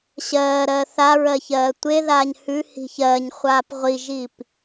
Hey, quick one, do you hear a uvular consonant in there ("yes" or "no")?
yes